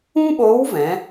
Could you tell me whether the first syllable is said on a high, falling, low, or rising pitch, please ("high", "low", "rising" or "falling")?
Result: high